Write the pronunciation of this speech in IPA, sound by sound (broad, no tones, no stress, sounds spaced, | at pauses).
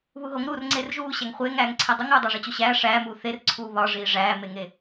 β u ɦ o ŋ ɾ uː r ŋ͡ǀ eː r ʒ uː ɕ æ ŋ χʷ eː ŋ æː ŋ ǀʰ e dˤ u ŋ uː dˤ æ ʐ i t͡ɕ o ɕ æː ʂ æː m uː θ e r ǀʰ uː β ɒ ʐ iː ʐ æː m e ŋ e